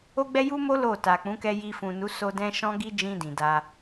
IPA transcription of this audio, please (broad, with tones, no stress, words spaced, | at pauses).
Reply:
o˦ɡ͡bɛ˦ ju˦mo˦ lo˦˨ta˨k͡pũ˨˦ kɛ˧ji˧fũ˨nu˨˦ so˧ dɛ̃˦ʃɔ̃˦ɡi˦ d͡ʒĩ˧ dĩ˨da˧